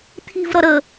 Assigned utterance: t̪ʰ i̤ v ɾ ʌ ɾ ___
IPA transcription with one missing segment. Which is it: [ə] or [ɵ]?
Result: ə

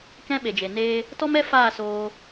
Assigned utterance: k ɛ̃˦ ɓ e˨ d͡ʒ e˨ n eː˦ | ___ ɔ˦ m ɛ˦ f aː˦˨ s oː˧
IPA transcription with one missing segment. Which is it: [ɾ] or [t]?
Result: t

